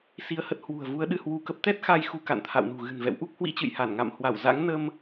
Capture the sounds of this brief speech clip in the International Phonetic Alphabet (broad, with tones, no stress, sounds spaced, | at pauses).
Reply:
s i˧ ə̯ h ə˦˥ t̚ h w ṳ˨˩ ə̯ v u˨˦ ə̯ ɗ ɨ˧ h w u˧ k ə˦˥ p̚ t̪ ɛ˦˥ t̚ x a˧ j x u˨˦ k a̰˧˨ n t̪ʰ a̰˧˨ w n ṳ˨˩ ɣ ɨ̤˨˩ n v ɛ̰˧˨ w ʔ u˦˥ k̚ h w ḭ˧˥ t͡ɕ ɨ̰˧˨ j h a˧˩ n ŋ a̰˧˨ m h w a˧˩ w z a̰˧˥ ŋ n ə˧ m